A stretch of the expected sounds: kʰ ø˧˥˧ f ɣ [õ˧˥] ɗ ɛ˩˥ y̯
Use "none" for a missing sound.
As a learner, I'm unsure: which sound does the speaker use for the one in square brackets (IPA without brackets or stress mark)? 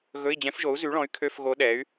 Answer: o˧˥